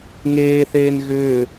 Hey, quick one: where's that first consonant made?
velum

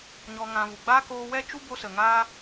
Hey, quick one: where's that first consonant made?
palate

